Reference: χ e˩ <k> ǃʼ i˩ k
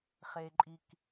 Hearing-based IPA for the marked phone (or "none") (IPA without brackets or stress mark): none